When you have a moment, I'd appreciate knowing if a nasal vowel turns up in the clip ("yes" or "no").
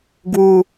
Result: no